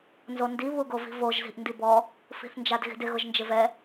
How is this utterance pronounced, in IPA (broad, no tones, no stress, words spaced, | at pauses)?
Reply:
nzondi βuɡovi̤voʒ zi̤ʔndibɔ | fi̤θnd͡ʒadɣi̤dɪ ɣʊʒnd͡ʒɪvɛ